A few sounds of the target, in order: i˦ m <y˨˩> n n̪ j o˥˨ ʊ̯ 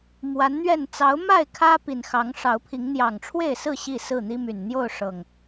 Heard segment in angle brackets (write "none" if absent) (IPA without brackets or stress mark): y˨˩